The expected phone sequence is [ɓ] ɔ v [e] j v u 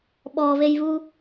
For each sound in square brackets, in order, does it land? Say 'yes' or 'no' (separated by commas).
yes, yes